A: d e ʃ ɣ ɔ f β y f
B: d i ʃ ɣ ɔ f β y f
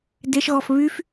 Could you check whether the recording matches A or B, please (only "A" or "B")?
A